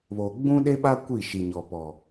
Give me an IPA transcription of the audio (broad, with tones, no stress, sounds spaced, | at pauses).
β oː˨ ɡ͡b ũ˦ ɗ e˦ ɓ a˦ kʷ i˦˨ ʃ i˨ ɲ ɔ˨ p ɔ˨